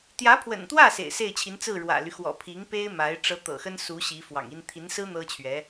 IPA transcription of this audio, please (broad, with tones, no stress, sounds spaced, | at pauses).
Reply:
t̪ j ä˧˥ pʰ w ə̰˨˩ n t̪ w ä˥˩ s ḛ˨˩ ɪ̯ s e˥˩ ɪ̯ t͡ɕʰ i˧˥ n t͡s ɹ̩˥˩ ɻ w ä̰˨˩ l y˦ x w ɔ̰˨˩ pʰ i˧˥ ŋ p e˥ ɪ̯ m a˧˥ ɪ̯ ʈ͡ʂ ɤ˧˥ t̪ ɤ̰˨˩ x ə˥ n s u˧˥ ɕ i˧˥ f w ɑ̰˨˩ ŋ i˥ n t̪ʰ i˧˥ n s ɹ̩˥ n̪ ɤ˥ t͡ɕʰ ɥ ɛ˧˥